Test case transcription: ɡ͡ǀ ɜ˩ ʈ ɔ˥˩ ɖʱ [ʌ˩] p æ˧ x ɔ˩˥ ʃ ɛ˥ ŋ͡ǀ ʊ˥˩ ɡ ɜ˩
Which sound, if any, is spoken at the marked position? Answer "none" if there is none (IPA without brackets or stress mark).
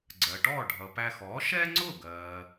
ʌ˩